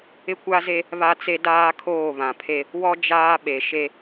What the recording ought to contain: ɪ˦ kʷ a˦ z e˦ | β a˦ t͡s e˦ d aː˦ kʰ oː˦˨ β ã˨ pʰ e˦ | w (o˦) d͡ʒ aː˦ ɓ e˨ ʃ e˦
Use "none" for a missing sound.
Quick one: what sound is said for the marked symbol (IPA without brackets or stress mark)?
ɔ˦